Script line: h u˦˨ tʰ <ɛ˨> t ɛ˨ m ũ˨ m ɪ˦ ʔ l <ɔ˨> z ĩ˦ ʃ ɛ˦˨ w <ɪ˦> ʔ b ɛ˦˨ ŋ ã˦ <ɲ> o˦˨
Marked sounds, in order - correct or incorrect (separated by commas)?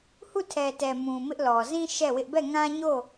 correct, correct, correct, correct